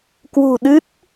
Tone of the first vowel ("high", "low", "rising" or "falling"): low